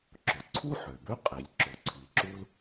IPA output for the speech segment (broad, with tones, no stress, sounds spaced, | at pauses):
ǁ ʊ˩ ǀʰ u˥ ħ ø˩ b ø˥ qʼ i˩ lʲ ǁ ʊ˩ ǀʰ i˩ ǁ u˥ l